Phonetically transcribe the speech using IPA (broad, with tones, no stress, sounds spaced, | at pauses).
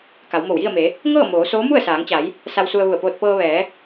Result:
k a˩˧ w m o˧˩ w j i˥˨ ə̯ m e˩˧ | ŋ ɤː˥˨ m oː˩˧ s oː˧˥ m u˥˨ ə̯ s aː˩˧ ŋ t͡ɕ a˩˧ j | s a˧ w s u˧ ə̯ ʋ u˧˩ ə̯ p oː˧ t̚ p ɤː˧ ʋ ɛː˩˧